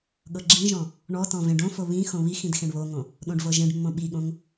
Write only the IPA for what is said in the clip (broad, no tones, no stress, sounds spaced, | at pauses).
ɠ ɤ ɡ͡ǁ ĩ ʒ ɔ̃ | ɳ ɔ t ɔ̃ v ẽ ɖ õ f o β ĩ x õ β i x ĩ d x ẽ ɳ β o ŋ õ | ɗ õ ɖ v ɤ ʒ ẽ ɖ mː õ ɓ i ɠ õ ŋ